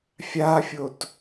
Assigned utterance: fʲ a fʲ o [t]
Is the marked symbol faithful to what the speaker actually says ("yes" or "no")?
yes